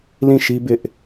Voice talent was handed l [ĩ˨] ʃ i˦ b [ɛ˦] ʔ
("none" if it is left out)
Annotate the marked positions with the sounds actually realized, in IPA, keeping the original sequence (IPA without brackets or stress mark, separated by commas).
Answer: ĩ˦˨, ɪ˦